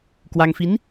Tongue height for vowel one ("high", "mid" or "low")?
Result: low